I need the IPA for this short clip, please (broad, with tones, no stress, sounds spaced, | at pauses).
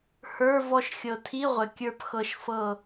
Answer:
h ə˞˧˥˧ v ɔ˦˨ ʃ xʲ ɤ˨ tʰ i˧˥˧ ʁʷ ɘ˨ kʲ ə˞˦˨ p x ɤ˦˨ ʃ f ɤ˦˨